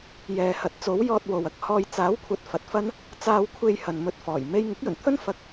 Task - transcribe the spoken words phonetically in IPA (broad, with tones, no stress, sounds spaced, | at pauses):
j ɛː˨ h ɐ˨˥ t̚ t͡s o˨˥ w j ɔː˧ t̚ w o˨ w ɐ˧ k̚ h ɔː˧ j t͡s aː˨˥ w kʷʰ ɐ˨ t̚ f ɐ˨˥ t̚ f ɐ˥ n | t͡s aː˧ w kʷʰ e˧ j h ɐ˨ n m ɵ˧ t̚ f ɔː˨˩ j m e˥ j ŋ ɪ˨˥ k̚ j ɵ˨˩ n t̪ʰ ɵ˥ n f ɐ˧ k̚